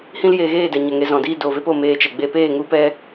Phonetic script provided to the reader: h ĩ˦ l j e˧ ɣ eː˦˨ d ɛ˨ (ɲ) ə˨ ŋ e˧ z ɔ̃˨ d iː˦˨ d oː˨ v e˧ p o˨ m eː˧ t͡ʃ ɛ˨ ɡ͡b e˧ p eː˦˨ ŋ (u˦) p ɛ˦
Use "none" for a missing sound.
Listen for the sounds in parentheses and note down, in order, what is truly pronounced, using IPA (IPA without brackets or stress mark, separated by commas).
ɲ, u˦